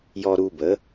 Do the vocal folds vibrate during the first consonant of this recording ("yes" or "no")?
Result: yes